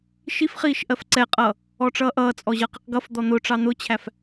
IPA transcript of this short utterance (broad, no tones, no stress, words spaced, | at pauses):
ʃifχiːʃ ʔɜfǀɛqʼʌː | ɔʈ͡ʂʌːʔʌːt͡sʼɔ ʑʌːqiqɡʌfd̪ɔ n̪ʊʈ͡ʂɑ n̪ʊt͡ɕʰæf